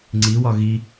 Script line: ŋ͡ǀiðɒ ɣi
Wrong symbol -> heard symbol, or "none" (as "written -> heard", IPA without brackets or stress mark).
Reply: ð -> w